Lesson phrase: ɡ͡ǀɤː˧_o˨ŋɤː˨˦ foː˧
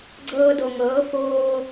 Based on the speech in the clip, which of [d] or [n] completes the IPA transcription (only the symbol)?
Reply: d